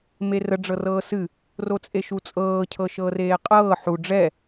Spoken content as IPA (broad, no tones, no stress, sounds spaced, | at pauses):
m e r ə ɖ͡ʐ ɤ r ɤː s ɨ | r o t͡sʼ e ʃ u t͡sʼ ɤː cʰ ɤ ʃ ɤː r eː qʼ ɤː ħ u ɖ͡ʐ ɛ